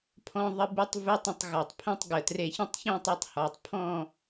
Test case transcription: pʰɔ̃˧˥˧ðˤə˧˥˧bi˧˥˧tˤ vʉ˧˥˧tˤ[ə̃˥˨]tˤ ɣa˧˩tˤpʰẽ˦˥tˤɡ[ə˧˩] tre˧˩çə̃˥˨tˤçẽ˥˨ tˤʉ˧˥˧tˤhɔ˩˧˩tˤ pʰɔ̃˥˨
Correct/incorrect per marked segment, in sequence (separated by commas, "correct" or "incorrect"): correct, correct